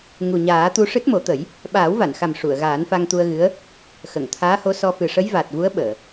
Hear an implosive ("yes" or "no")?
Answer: yes